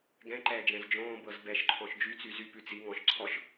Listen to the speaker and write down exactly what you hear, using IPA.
ɡ ɛ̃ ǃ ɛː d͡ʒ ɛ̃ z d͡ʒ õː b ɤ z b ɛ ʃ ǃʰ ɔ̃ ʃ d͡ʒ y t͡s y z y p ʉ t͡s i ŋ ɔ̃ ʃ ǀʰ ɔ ʃ

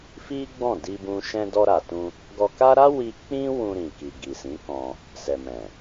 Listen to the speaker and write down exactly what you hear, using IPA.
f i˦ ɡ͡b ɔ̃˦˨ d i˧ b ũ˧ ʃ ɛ̃˧ d ɔ˧ ɾ a˨ t ũ˧ | ɡ ɔ˧ k a˦ ɾ a˦ w i˧ k͡p ĩ˦ w ũ˧ ɾ ĩ˨ k i˨ ɡ i˨ s ĩ˨˦ k ɔ̃˧ | s ɛ˨ m ɛ̃˨

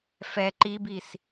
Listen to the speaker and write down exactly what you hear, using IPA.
f ɛ ǃ i b i s

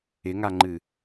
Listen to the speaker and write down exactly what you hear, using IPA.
ɪ ŋ a ŋ͡ǃ ɨ

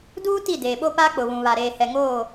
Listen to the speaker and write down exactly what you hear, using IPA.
d uː˦ t i˦˨ d eː˨ ɓ o˦ p aː˦ k͡p ʊ˨ β ũ˨ β a˨ ɾ eː˨ h ɛ˨ ŋ oː˦˨

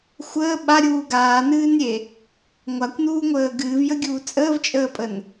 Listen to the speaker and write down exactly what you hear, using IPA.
xʷ əː ɓ a ɾʲ uː ɡ aː n ɨː n ɾʲ e | ŋʷ a kʷ n uː ŋʷ əː ɡ ɨː v j ə ɡʲ uː t͡sʼ əː v t͡ʃʼ əː pʼ ə n

